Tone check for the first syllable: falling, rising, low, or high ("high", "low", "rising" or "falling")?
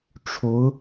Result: rising